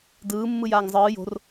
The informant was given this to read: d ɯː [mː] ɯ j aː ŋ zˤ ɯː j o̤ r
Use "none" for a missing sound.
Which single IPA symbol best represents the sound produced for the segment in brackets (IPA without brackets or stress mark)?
mː